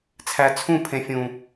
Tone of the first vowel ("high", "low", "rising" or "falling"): low